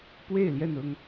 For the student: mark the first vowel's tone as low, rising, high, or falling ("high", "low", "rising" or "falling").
falling